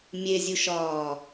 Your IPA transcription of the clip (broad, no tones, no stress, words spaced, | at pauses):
mʲezʲuʃɒː